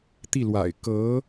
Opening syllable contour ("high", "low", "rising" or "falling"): falling